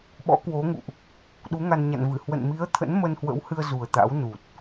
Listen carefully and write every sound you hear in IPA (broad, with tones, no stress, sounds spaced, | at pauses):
ɓ ɔ̰˧˥ k w o˨˦ ŋ ṵ˧˨ ʔ | ɗ u˨˦ ŋ a˧ n ɲ a̰˧˨ n v ɨ˧˩ h w ə̰˧˨ n m i˨˦ ə̯ t̪ʰ ə̰˧˥ n m ə˧ n h w ə̰˧˥ w h ɨ˧ ə̯ z u˨˩ ə̯ t̪ a̰˧˥ w n u˨˩ t̚